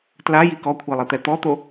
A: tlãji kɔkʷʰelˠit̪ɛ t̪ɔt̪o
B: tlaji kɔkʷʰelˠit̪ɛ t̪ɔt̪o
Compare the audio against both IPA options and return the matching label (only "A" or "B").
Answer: B